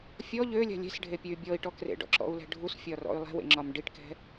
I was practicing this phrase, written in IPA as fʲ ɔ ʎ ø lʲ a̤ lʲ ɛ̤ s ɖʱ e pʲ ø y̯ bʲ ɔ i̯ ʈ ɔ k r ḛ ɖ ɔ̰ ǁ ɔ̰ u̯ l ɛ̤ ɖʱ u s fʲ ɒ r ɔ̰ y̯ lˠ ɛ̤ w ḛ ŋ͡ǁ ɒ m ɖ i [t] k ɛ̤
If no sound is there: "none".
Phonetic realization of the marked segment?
ʈ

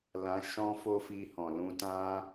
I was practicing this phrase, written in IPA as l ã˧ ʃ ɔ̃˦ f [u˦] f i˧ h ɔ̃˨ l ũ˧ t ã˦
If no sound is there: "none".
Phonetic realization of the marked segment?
o˦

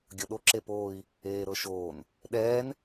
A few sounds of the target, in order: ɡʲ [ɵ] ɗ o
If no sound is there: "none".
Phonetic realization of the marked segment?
ɤ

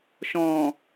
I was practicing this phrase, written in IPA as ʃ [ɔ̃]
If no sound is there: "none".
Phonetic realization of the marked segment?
ɔ̃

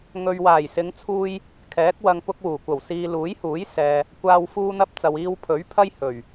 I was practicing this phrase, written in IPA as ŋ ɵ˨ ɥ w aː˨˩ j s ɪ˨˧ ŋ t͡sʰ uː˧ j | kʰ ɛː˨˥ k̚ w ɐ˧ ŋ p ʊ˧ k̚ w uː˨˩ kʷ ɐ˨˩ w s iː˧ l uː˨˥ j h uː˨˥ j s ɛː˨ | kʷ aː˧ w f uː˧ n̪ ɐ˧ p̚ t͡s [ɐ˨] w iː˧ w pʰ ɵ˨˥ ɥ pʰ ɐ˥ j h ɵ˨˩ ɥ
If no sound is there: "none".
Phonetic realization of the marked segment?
ɐ˨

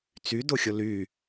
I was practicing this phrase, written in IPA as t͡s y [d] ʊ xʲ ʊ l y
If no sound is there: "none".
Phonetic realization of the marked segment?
d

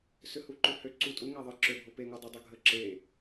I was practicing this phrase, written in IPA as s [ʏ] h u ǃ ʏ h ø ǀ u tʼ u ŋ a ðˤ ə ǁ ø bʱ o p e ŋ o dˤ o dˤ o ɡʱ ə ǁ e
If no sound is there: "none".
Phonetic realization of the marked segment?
ʏ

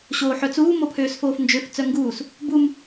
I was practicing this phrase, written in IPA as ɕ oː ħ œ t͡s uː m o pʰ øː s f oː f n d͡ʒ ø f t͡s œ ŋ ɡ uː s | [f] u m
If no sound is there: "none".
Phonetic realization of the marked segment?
b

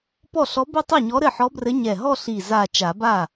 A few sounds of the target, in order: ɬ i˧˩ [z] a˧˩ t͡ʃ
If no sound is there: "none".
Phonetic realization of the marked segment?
z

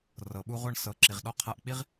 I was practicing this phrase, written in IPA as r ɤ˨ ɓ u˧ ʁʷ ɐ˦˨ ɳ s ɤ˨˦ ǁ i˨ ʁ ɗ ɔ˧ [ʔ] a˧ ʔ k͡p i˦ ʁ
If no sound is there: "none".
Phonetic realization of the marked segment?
qʰ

